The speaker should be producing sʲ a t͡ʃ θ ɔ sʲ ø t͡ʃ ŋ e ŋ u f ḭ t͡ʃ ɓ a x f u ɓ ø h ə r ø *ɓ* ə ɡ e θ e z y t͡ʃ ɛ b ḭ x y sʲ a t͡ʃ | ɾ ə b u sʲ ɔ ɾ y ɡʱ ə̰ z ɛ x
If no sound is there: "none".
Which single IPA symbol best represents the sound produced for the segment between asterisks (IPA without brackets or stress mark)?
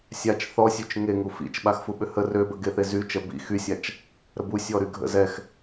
b